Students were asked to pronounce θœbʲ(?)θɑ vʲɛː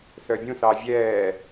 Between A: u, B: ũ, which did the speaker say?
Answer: B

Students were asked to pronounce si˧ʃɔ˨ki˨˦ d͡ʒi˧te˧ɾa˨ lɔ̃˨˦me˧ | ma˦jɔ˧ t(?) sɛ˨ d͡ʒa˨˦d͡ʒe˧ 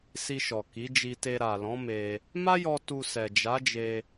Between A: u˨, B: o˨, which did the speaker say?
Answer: A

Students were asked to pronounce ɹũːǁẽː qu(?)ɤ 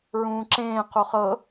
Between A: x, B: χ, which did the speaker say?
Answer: B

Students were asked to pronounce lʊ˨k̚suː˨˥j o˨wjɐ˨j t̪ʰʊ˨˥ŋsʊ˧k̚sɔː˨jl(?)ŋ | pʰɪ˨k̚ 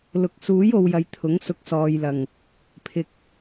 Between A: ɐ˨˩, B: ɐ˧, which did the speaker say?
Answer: A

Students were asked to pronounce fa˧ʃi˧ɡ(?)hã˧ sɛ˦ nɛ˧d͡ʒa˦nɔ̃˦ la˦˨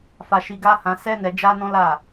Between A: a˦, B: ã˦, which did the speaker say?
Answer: A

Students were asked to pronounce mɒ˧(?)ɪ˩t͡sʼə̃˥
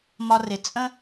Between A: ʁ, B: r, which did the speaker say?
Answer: B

